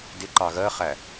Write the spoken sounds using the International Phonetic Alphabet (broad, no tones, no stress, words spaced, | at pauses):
dɪǃɑ ɣɜχæ